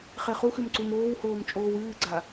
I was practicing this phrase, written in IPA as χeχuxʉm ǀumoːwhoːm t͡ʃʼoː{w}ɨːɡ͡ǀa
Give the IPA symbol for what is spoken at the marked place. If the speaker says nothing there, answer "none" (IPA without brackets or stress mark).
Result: w